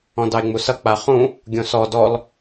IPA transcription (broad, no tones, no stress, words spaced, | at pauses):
ɔ̃dɑe̯ŋ͡musʌ k͡paχũ | ɡʲõsɔ dɔl